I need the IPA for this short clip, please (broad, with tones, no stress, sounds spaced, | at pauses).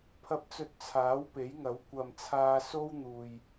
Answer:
pʰ ɐ˨ p̚ t͡s ɵ˨ t̚ t͡sʰ aː˨˥ w p e˨˥ j ŋ ɐ˨˥ w kʷ ɐ˨ m t͡sʰ aː˧ s o˥ w n̪ uː˨ j